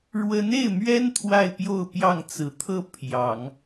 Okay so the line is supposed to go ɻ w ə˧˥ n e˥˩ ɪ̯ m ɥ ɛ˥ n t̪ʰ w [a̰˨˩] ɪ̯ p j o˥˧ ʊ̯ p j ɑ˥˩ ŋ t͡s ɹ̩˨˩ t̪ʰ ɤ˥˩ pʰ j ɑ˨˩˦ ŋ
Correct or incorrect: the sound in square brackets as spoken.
incorrect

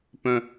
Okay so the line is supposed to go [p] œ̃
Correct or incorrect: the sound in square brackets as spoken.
correct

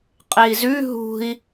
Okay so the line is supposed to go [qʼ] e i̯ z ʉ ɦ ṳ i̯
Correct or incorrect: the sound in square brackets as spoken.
correct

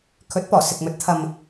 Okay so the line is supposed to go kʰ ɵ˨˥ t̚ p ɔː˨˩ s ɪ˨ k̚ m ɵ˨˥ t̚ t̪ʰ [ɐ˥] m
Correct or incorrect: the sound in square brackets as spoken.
incorrect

